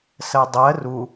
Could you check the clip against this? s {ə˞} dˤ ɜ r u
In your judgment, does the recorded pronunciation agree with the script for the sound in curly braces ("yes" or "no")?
no